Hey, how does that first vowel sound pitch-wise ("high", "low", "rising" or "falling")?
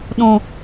low